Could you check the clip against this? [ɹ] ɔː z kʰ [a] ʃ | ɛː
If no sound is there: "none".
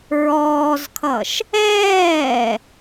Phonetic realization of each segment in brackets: ɹ, ʌ

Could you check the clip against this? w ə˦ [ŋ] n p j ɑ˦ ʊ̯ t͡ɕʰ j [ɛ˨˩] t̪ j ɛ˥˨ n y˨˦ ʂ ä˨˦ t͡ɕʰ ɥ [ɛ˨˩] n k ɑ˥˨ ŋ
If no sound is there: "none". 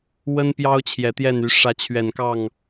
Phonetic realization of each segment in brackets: none, ɛ˨˩, ɛ˨˩

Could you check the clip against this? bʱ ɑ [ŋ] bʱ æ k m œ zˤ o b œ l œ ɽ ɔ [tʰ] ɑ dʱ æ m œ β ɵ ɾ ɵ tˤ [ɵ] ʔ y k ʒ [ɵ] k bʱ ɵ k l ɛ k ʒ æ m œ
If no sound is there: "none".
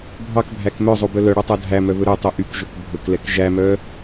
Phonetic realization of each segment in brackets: k, tˤ, ɵ, ɵ

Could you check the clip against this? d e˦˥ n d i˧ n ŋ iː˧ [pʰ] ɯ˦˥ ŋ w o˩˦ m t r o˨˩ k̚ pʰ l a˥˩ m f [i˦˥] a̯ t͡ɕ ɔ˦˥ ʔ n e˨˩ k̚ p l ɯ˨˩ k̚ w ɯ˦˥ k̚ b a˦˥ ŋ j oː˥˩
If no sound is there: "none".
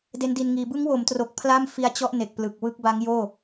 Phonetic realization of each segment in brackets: b, i˦˥

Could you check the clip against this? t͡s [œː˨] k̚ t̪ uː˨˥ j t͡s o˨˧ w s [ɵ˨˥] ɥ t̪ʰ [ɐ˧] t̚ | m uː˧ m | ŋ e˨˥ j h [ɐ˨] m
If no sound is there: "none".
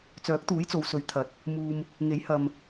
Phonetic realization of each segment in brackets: œː˨˥, ɵ˨˥, ɐ˨˥, ɐ˨

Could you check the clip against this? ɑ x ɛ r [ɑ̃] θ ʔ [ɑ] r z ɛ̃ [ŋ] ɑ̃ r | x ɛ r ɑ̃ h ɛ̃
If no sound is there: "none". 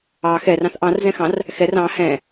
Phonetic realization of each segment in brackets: ɑ̃, ɑ̃, x

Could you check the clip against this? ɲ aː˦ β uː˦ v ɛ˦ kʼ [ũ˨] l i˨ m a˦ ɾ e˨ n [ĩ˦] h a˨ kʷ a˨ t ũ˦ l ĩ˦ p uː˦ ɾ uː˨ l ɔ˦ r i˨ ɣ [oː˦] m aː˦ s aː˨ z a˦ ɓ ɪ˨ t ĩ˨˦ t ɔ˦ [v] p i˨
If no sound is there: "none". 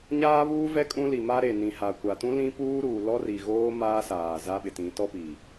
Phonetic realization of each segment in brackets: ũ˦, ĩ˨, oː˦, none

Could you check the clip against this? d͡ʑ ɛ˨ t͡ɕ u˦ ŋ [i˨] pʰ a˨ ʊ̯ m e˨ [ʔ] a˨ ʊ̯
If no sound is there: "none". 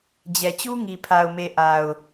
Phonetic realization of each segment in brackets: i˨, ʔ

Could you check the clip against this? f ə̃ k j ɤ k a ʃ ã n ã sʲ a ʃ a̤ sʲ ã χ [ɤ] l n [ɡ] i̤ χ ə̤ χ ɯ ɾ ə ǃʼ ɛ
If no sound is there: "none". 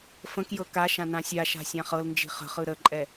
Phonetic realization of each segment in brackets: ɤ, d͡ʒ

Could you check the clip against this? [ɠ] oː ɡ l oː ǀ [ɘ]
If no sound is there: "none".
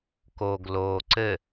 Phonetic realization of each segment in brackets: k, ɘ

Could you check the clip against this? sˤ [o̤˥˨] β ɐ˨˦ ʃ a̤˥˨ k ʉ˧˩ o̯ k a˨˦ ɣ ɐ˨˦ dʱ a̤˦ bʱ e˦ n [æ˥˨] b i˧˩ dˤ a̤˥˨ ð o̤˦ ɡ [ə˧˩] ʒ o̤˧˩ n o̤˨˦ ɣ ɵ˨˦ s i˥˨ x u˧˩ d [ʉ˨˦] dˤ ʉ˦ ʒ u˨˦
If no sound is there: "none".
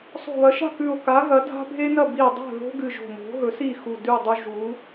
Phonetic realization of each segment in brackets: o̤˧˩, ɐ˥˨, ɨ˧˩, ʉ˥˨

